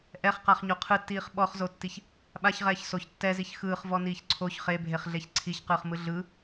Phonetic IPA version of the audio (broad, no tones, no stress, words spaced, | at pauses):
ʔɛχqaχɲo qʰɯtːiːχ ɓɔχzotːiç | ɓaçʁɛːç soç tːɛziç xɯːχvɔniːç ǀʰoç χebʱeχɮeç ǀʰiçqɯːχmɯ ɮɯ